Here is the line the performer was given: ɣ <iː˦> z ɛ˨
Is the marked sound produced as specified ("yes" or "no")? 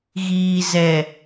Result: no